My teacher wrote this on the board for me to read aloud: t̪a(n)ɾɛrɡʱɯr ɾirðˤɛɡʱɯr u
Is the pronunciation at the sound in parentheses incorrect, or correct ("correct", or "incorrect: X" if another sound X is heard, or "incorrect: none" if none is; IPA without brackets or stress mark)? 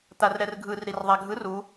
incorrect: r